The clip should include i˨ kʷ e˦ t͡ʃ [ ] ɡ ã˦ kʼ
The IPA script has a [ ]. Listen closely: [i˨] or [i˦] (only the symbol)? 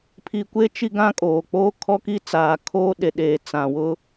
i˦